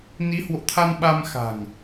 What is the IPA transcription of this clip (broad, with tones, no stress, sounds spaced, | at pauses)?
n i˨˦ h w o̰˧˨ t̪ʰ a˧ n ɓ a˧ m x a̤˨˩ ŋ